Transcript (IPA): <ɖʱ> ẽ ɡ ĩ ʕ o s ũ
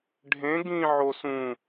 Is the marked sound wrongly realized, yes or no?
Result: no